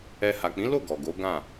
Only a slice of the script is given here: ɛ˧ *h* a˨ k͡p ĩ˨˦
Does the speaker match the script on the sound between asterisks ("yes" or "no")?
yes